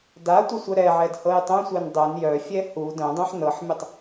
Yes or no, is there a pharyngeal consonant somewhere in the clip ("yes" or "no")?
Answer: yes